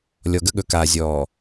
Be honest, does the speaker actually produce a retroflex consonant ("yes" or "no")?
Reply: no